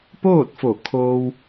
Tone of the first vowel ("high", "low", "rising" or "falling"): falling